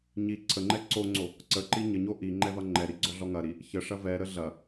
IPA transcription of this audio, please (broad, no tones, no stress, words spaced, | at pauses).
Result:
ɲi ǀʰəŋ͡ǃɛ ǀoŋ͡ǀo | ǀəǃi ɲəɲo ʔi ŋ͡ǃɛvɐŋ͡ǃɛɾi ɡ͡ǀɔɮɔŋɐɾi | çə ʂɐvɛɾə ɮɐ